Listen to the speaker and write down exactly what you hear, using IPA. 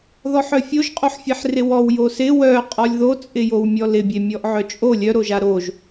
ð ɔ ħ œ fʲ o ʒ qʼ o ħ fʲ e ħ r ɪ w ɔ w j o s ɪ w œ qʼ ɔ lʲ ð o t͡sʼ ɪ j o w mʲ ɔ l ɪ bʲ e mʲ ɔ ʔ ʕ œ t͡ʃʼ o lʲ œ ɾ o ʒ a ɾ o ʒ

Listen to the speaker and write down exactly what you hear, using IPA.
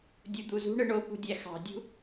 dʲ u d̪ u z ṳ ɳ ɯ ɳ o p ṳ dʲ æ x ɑ̤ dʲ ṳ

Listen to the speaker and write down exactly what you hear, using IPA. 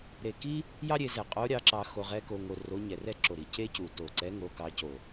ɾ e˧˩ k i˥ | j ɑ˥ ɾʲ e˧ z ɛ˧˩ qʼ o˧˥ ɾʲ ɑ˧˥ ǁ ɑ˧ x o˧ ʁ ɛ˧˥ k o˧ ŋ o˧ r o˧˥ ɲ ɛ˧˩ r ɛ˥ ǁ o˧˩ ɾ i˧˩ c e˥ c u˧˩ t o˧˩ ǀ ɛ˧˥ ŋ o˧˥ k ɑ˧˥ c o˧˩

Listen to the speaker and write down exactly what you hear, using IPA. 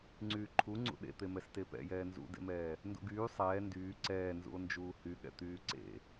ŋ͡ǀ yː ǃʰ u ŋ͡ǀ ṵ ɗ ḛ t̪ e m ɛ s t e p ɛ̰ j ɛː n z ṵ d ḛ m ɛː | n d ṵ ɡ yː sˤ ɛː n d yː ǀ ɛː n z ṵ o̯ n d͡ʒ uː h y ɠ ɛ̰ t̪ yː ǀ ḛ

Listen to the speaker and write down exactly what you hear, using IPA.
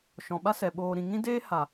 ʃ ɔ̃˨ ɓ a˦ s ɛ˨ ɓ oː˧ ɾ ĩ˧ ŋ ĩ˦ d eː˦ h a˨

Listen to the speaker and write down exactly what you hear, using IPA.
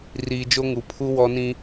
r iː˨ d͡ʒ o˦ ŋ u˨ pʰ u˦ w ɔ˦ n ĩ˦

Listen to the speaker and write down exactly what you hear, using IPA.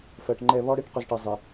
f ɜ˨ ʈ ŋ͡ǃ ɛ˦˨ β ɔ˦ ɽ e˦ ʈ q ɵ˨ z ʈ ɛ˨ zˤ e˨

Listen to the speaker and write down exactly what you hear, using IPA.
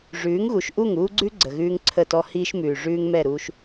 ʐ ʉː˨˦ ŋ ɣ u˨ ʃ ʔ u˦˨ ŋ uː˦ ɡ͡ǀ ʉ˦ ɡ͡ǀ ə˨ ɣ ʉː˦ ŋ ǀʰ ə˦˨ t ɔ˦ h iː˦ ʃ m ʉː˨ ʐ ʉː˦ ŋ m ɛ˦˨ ɾ uː˦ ʃ

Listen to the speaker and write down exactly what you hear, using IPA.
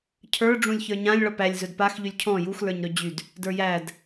cʰ ə˞ ɖ͡ʐ ũ lʲ ç ə˞ ɲ ã lʲ ɭ ɔ p æ lʲ z ɵ d p a x ʎ y lʲ cʰ ɔ̃ j u x l ə˞ ɲ ɾ ɵ d͡ʑ y d | d ə˞ j æ d

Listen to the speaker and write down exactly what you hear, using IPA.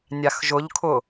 nʲ a x ʒ ʊ ʎ kʰ ʊ

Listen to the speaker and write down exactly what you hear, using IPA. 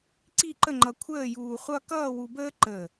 ǀ i˥˧ ǃ ə˥˧ ŋ͡ǃ ʌ˧ kʷʰ əː˥˧ j uː˧ χʷ ʌ˥ k ʌː˥˧ w u˧ b əː˥ ǃ əː˧˩

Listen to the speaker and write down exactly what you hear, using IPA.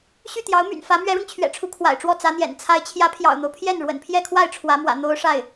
ɕ y˥˩ t̪ j ɑ˧˥ ʊ̯ m y̰˨˩ n f ä˧˥ m ɥ ɛ˧˥ ɻ ʊ˧ ŋ t͡ɕʰ ɥ ɛ̰˨˩ ʈ͡ʂʰ u˧˥ kʰ w a̰˨˩ ɪ̯ ʈ͡ʂ w ɔ˥˩ t͡s ä˧˥ n̪ j ɛ̰˨˩ n t͡sʰ a˧˥ ɪ̯ t͡ɕʰ j ä˧˥ pʰ j ɑ̰˨˩ ʊ̯ n̪ o˦ ʊ̯ pʰ j ɛ˥˩ n ɻ w ə̰˨˩ n pʰ j ɛ˥˧ kʰ w a˥˩ ɪ̯ ʈ͡ʂʰ w ä˧˥ m w ä̰˨˩ n̪ o˥ ʊ̯ ʂ a˥˩ ɪ̯

